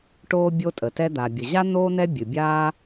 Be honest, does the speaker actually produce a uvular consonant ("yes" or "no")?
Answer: no